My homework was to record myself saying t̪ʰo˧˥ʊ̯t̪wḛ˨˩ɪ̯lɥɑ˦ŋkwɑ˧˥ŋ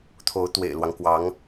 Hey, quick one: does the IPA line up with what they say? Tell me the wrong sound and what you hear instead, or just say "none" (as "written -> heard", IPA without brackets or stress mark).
ɥ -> w